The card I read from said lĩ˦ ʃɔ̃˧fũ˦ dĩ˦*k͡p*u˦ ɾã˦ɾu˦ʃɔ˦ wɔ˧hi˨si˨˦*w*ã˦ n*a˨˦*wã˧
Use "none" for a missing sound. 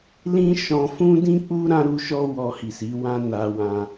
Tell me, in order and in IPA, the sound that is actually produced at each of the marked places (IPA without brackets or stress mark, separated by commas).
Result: k͡p, w, a˧